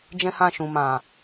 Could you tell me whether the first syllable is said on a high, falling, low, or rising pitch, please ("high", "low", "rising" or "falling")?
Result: high